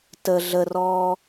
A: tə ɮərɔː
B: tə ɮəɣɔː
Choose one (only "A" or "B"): A